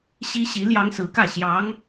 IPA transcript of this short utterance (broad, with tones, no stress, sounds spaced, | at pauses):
ɕ i˥ ɕ i˧˥ l j ɑ˥ ŋ s ɹ̩˧˥ k ä˥˩ ɕ j ɑ˧˥ ŋ